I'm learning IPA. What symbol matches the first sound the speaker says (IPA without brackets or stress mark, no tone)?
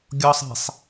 ɡʲ